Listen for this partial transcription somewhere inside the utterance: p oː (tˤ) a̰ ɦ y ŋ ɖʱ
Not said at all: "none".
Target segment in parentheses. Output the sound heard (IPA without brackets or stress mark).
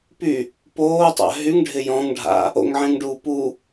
tˤ